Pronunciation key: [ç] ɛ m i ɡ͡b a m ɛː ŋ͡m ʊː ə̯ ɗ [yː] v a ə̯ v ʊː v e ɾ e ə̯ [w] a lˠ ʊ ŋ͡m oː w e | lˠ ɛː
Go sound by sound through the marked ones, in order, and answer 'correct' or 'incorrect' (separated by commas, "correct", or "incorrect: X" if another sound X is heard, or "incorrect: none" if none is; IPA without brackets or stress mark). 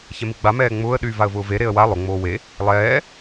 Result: correct, correct, correct